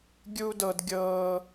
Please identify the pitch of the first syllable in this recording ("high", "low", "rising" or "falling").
high